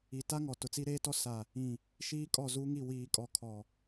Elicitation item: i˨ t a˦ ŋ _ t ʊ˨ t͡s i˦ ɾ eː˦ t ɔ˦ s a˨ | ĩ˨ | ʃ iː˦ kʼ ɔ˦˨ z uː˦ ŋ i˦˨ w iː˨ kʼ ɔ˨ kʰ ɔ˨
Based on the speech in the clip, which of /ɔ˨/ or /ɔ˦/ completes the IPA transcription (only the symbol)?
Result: ɔ˨